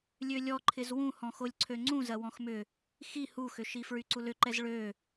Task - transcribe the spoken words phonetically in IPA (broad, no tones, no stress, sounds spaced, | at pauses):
lʲ ø lʲ ɔ ǃʰ ɪ z w ũ h ɔ̃ x o lʲ ǀʰ ø ŋ͡ǀ ũ z ɐ w ɔ̃ x m ʏ | x i h u x ʏ ʃ i f ɹ y ǀ u l ʏ ǃ ɛ z ɭ ø